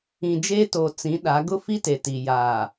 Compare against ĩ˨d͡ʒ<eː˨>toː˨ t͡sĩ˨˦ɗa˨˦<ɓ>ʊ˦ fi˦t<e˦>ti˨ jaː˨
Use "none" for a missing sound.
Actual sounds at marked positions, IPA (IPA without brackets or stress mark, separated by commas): eː˦, ɡ, e˨